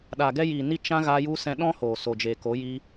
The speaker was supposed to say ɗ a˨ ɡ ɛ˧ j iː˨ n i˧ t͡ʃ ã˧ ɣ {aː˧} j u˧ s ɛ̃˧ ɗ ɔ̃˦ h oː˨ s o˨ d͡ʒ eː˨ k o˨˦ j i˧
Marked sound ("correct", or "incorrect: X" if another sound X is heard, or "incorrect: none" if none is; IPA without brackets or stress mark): correct